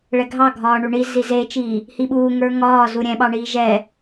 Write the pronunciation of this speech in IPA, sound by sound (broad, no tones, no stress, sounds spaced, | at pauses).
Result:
ɭ ɛ ɡʱ ɑ ɡʱ ɒː ɳ u ɳ i z i z e t͡ʃ iː | h i ɓ uː ŋ ə˞ ŋ ɒː z u ɾʲ ɛ̃ ɓ ɑ ɳ iː ʒ ɛ